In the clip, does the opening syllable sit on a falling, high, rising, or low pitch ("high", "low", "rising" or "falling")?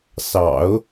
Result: low